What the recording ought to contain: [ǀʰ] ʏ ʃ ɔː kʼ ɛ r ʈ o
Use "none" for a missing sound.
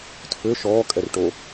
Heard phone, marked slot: tʰ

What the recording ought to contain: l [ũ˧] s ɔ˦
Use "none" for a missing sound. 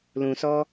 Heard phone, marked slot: ũ˧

